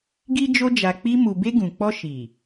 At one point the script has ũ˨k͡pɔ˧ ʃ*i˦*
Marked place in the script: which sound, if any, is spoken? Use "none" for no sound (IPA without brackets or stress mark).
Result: i˨